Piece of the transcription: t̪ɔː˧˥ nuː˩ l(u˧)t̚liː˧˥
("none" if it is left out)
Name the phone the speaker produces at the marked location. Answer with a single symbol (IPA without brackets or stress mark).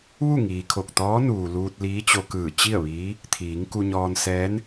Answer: uː˧